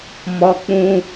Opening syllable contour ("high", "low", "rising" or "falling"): high